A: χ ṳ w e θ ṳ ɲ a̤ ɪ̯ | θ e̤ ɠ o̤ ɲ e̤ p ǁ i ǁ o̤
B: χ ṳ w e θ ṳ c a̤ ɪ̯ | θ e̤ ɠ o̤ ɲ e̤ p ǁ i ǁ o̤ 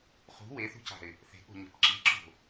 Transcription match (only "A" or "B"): B